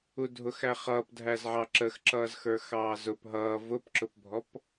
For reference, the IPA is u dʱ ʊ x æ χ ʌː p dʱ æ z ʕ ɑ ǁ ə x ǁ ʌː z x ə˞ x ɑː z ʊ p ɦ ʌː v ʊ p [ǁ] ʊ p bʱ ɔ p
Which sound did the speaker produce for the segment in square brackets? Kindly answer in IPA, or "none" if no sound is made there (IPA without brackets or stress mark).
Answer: ǁ